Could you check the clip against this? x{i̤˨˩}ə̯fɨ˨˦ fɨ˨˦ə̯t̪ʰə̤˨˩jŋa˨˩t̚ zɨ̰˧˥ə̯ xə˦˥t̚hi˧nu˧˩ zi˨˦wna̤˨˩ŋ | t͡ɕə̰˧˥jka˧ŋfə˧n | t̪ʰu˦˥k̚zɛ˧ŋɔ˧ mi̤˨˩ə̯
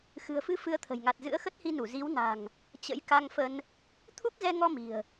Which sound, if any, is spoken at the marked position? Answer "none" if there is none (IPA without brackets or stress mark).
ɨ̤˨˩